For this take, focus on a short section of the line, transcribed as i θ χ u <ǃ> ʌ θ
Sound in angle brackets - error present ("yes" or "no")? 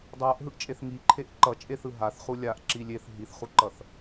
no